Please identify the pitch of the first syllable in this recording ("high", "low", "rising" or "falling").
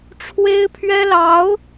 high